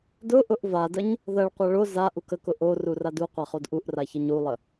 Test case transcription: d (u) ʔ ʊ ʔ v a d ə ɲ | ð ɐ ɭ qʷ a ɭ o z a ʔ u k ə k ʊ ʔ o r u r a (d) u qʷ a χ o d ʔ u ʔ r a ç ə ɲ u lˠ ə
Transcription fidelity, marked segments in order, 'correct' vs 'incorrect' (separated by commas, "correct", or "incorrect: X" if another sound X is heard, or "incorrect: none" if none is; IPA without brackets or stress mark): incorrect: ʊ, correct